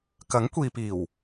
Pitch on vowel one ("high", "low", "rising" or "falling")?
rising